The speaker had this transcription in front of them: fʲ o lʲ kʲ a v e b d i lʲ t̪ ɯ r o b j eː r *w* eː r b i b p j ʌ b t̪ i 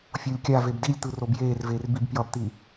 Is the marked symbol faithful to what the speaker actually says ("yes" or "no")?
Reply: no